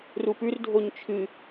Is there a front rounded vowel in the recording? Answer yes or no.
no